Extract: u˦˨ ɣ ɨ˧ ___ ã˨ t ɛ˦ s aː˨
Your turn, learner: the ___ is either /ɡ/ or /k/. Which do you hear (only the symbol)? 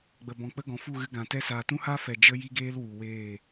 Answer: ɡ